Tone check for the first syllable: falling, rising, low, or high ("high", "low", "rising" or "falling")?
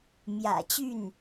low